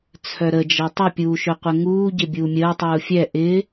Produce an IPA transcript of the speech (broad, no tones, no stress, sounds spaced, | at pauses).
t͡sʰ œ ɾ ə d͡ʒ ɐ tˤ œ pʲ uː ʃ œ qʷ ə ŋ uː ɟ ɪ bʲ uː mʲ əː tˤ uː fʲ ɛ ʔ ɪ